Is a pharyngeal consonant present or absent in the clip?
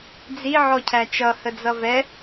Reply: present